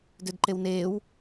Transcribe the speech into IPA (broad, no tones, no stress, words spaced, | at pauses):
dødǃewneːw